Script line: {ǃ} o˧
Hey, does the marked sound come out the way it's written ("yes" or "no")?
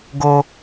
no